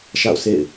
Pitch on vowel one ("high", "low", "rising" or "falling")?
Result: falling